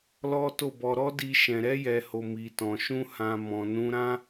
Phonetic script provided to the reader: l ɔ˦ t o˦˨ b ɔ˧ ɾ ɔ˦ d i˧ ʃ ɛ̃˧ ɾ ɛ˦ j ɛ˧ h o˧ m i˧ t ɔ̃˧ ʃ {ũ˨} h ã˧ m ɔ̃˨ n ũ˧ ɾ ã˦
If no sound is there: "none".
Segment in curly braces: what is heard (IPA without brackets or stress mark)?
ũ˦